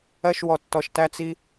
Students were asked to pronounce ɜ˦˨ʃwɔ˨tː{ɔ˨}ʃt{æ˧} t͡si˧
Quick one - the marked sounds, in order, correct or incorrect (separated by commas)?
correct, correct